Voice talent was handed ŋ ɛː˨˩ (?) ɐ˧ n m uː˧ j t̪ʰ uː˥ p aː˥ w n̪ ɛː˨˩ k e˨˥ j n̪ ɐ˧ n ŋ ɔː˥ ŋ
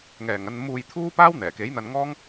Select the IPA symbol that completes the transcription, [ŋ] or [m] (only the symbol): ŋ